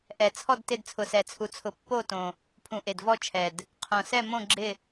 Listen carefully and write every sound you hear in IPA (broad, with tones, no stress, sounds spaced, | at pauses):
ʔ ɛ˨˩ t͡sʰ ɔ˦˨ d t ɪ˦˨ d t͡sʰ ʊ˨˩ s ɛ˨˩ t͡sʰ u˨˩ t͡sʰ ʊ˨˩ pː o˦˨ t õ˨˩ | pʰ ũ˨˩ ʔ e˨˩ d v ɔ˦˨ t͡ʃʰ ɛ˨˩ d | qʰ õ˨˩ s ɛ˦˨ m õ˦˨ ɡ͡ǁ ɪ˦˨